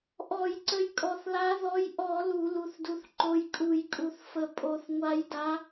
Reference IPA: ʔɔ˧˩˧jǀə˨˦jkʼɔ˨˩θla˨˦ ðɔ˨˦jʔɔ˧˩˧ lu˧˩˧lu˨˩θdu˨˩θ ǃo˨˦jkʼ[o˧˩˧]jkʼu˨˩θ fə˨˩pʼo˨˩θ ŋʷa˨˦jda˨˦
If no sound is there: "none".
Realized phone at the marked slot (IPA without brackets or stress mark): u˧˩˧